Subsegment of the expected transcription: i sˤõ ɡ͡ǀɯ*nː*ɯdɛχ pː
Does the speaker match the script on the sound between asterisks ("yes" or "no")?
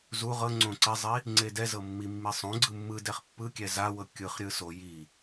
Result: no